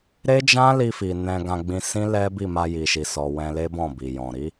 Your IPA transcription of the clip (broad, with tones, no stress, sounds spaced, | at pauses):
ɾ e˦ d͡ʒ ã˦ l i˧ f i˨ n ɛ̃˧ ɡ ã˧ ɡ͡b ĩ˧ s ĩ˦ l ɛ˦ b i˦˨ m a˧ j i˨ ʃ i˨ s ɔ˨ w ɛ̃˧ l e˦ b ɔ̃˦˨ b i˨ j ɔ̃˨ ɾ i˨˦